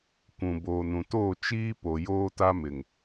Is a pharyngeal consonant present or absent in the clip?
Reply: absent